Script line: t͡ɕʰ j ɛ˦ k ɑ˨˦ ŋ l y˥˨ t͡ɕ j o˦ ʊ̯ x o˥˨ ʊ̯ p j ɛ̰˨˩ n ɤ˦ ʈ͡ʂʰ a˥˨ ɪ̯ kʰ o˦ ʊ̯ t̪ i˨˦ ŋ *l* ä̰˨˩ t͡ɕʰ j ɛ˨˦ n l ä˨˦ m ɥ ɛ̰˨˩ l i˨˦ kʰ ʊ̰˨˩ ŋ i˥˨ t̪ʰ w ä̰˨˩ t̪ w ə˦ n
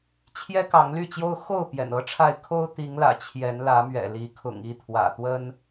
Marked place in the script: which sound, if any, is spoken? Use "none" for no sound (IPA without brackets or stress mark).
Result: l